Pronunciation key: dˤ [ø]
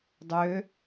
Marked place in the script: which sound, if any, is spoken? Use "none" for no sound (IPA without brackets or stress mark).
ø